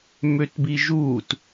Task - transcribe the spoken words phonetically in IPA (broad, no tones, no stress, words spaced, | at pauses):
møtbiʒuːt